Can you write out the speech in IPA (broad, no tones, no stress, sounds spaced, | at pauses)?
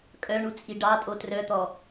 kʼ œ ɳ u t͡sʼ i ɖ ɑ tʼ o t r œ t̪ ɔ